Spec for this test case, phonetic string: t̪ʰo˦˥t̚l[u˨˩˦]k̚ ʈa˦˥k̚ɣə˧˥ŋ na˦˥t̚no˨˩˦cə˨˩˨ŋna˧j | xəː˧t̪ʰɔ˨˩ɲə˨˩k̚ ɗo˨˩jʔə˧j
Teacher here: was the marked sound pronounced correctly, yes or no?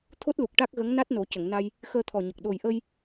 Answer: no